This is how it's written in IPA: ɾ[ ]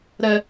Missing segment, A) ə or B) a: A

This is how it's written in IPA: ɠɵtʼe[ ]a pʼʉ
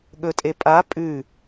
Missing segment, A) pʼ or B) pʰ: A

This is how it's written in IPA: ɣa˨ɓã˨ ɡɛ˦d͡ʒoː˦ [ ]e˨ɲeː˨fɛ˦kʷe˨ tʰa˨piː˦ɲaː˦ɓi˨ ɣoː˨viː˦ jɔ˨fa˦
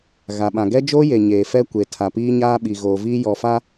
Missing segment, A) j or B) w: A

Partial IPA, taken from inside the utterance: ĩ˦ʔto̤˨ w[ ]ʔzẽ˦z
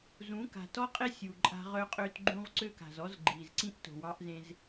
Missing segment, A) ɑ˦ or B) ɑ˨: A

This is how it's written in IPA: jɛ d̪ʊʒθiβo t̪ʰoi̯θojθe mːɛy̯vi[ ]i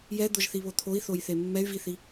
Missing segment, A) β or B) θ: B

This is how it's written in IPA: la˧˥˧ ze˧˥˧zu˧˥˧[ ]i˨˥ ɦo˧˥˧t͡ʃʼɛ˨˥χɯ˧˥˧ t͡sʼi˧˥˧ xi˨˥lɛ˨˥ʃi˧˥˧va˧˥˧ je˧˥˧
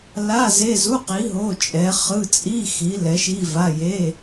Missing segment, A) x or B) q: B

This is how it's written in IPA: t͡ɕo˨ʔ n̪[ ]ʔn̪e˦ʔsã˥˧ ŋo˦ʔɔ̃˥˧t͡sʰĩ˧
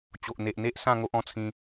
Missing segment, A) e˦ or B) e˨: B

